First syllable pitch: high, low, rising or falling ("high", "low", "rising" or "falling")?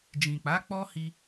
low